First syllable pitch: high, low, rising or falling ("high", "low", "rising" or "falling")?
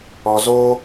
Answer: low